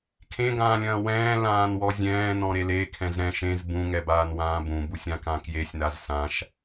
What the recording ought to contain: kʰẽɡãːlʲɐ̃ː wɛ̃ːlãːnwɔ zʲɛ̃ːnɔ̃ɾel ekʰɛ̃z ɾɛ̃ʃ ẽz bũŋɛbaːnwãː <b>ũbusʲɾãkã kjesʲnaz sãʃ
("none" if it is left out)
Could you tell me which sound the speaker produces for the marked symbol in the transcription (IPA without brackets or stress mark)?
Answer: b